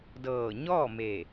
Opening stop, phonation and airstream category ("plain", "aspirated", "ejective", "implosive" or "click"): plain